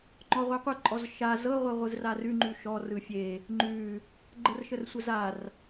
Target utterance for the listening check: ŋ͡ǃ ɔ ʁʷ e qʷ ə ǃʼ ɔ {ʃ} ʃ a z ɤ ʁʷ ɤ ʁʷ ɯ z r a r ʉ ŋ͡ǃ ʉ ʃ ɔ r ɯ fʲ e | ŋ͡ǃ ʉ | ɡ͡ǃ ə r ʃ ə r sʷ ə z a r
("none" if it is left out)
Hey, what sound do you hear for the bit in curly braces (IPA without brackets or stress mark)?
z